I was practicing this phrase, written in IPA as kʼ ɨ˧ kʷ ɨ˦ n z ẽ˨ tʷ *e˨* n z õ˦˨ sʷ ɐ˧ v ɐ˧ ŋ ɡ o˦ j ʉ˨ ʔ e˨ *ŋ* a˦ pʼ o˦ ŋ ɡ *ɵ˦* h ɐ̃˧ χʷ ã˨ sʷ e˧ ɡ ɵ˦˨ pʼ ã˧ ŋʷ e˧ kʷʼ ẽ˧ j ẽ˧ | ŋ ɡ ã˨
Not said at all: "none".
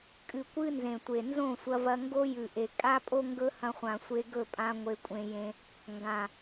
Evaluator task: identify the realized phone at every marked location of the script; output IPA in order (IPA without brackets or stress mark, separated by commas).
e˨, kʼ, ɵ˦